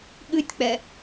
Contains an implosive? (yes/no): yes